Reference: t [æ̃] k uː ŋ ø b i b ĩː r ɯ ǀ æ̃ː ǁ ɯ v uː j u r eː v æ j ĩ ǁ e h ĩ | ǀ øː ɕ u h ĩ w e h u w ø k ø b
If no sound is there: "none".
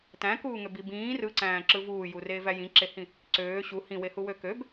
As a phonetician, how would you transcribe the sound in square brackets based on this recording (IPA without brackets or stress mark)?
æ̃